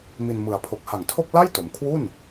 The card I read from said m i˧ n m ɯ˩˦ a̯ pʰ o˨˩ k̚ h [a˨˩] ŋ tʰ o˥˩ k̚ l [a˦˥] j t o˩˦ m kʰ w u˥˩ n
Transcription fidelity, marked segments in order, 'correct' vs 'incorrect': correct, incorrect

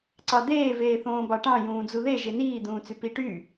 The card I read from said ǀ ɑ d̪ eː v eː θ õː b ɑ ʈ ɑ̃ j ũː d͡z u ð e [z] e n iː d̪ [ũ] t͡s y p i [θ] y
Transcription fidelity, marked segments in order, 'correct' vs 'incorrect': incorrect, incorrect, incorrect

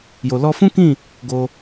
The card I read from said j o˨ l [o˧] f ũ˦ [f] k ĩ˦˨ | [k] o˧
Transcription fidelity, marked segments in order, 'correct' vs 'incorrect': incorrect, incorrect, incorrect

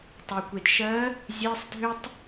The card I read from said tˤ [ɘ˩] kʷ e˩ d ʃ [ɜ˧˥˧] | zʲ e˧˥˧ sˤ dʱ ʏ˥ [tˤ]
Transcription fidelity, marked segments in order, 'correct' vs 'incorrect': incorrect, incorrect, correct

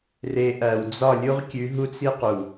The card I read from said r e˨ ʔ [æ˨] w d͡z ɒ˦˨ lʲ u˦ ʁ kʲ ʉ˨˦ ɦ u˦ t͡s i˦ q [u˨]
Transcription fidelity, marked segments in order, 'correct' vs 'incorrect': correct, correct

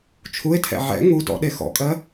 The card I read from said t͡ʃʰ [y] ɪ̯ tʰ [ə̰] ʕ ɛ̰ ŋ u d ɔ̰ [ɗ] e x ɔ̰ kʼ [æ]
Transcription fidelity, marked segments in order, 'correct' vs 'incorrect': incorrect, incorrect, correct, incorrect

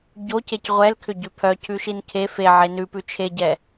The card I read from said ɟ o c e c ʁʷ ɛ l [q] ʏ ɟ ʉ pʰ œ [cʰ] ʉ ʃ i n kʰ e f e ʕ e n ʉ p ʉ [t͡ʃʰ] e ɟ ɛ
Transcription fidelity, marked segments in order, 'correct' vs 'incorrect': incorrect, correct, correct

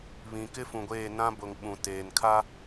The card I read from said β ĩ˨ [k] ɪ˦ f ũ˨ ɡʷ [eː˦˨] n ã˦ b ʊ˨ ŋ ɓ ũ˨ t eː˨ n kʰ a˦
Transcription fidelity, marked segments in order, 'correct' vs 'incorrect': correct, correct

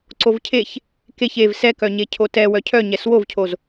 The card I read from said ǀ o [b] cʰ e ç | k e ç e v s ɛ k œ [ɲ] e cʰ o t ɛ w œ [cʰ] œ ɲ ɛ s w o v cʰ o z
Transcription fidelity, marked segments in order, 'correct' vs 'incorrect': incorrect, correct, correct

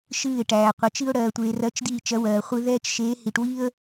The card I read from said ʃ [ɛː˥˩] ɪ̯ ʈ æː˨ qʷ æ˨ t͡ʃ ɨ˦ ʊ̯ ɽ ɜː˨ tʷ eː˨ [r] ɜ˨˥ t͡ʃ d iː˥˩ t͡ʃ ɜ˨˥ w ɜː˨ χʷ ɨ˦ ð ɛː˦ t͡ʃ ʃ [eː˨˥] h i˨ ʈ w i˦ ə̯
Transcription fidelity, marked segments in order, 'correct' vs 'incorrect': incorrect, correct, correct

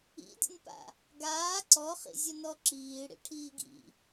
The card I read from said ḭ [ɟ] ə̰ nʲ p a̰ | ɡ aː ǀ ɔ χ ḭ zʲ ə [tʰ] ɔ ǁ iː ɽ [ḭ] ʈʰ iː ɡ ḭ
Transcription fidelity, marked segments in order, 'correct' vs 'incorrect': incorrect, incorrect, correct

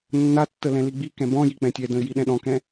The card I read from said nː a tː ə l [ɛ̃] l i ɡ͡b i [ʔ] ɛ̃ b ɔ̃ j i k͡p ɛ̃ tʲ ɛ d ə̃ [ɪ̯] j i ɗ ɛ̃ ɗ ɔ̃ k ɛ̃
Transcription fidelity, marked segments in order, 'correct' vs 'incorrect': correct, incorrect, correct

